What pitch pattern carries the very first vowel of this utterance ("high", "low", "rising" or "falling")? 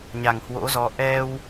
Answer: low